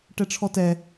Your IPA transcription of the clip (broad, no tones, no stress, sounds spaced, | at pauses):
ʈ ɛ ʈ͡ʂʰ ɔ t ɛ